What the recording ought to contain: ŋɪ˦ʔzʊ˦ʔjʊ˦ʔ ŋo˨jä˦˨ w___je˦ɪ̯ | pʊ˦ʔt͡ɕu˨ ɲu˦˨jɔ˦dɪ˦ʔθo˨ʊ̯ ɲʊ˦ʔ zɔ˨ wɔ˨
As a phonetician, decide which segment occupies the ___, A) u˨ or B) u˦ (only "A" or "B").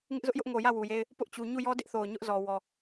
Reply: A